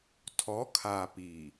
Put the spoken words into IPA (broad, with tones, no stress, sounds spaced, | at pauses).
tʰ ɔ˨˦ kʰ aː˨ p iː˨